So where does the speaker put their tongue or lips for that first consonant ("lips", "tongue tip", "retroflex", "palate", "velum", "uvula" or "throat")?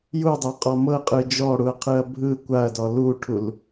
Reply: palate